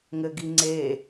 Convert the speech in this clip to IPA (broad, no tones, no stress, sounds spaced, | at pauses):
ŋ ɘ ɡ i ŋ͡ǀ e